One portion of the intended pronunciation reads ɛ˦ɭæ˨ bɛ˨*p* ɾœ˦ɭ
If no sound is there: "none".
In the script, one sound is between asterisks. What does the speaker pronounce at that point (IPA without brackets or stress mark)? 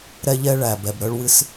b